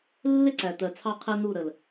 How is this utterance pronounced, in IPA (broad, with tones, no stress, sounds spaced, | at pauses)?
lː ɪ˦ ǀ æ˨ t̪ ɜ˨ t͡sʰ ɑ˦ qʰ ɛ˦ n̪ u˦˨ ɾ ə˨ l